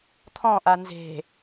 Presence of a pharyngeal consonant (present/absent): absent